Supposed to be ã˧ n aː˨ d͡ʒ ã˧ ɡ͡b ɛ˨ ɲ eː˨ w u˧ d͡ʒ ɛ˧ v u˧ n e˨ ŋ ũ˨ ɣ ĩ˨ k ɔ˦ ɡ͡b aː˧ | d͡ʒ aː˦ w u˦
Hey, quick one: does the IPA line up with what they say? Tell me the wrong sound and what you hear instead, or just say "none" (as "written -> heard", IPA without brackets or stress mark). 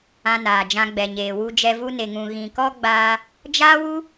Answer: none